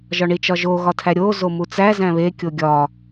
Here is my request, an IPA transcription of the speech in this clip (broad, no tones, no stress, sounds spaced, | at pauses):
ʒ ɒ ɳ i t͡ʃ ɒ ʒ o ɣ ɒ tʰ æ ɾʲ o z o m u t͡s æ z æ̃ β e kʲ o ɡʲ ɒ